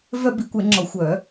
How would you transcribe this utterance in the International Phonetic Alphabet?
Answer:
vœ˥bi˨˩˦kʷɛ˨˩˦ŋ͡ǁɔ˨˩˦ xʷœ˨˩˦

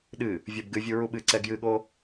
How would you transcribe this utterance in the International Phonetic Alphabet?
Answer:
ɗɨ | vʲɔbɡɨvʲu ɹuɓɨǀɛ ɡjɨɠo

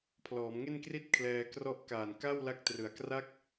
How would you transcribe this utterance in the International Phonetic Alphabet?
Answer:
pʰlɔː˩˦mŋe˥˩nkri˥˩t̚ kʰlɛː˧krɔ˦˥ʔkaː˨˩n ka˥˩wla˦˥k̚trɯ˨˩a̯ kra˥˩k̚

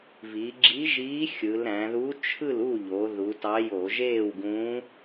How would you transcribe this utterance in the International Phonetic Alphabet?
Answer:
vi˩˧ɡ͡ǁi˧˥ʒiː˧˥ xʲɯ˩˧lɾæ̃˩˧ ðu˧˥t͡ʃʰɯ˥˨lu˥˨ʎo˩˧ ðu˩˧tɑ˧˥jo˧˩˧ ʒeː˥˨wɡũː˧˥

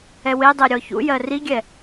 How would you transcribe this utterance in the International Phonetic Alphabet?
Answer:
ɛwedˤɛ ɾʲɔçṵjɜ riɡʲɛ

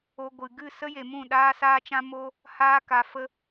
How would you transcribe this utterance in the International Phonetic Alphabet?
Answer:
o˧ɡʷɨ˨ ɡɨ˦˨sə˦je˨mũ˦˨ ɗaː˦saː˦t͡ʃã˦ mo˦ | haː˦ka˧fə˦

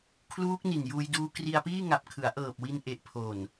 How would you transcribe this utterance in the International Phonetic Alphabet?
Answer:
kʰluː˦˥k̚ni˨˩njuː˧j duː˧kri˧a̯piː˥˩ ŋa˨˩p̚kʰɯ˩˦a̯ʔɤː˨˩p̚ wi˧n ʔe˨˩ʔpʰo˨˩n

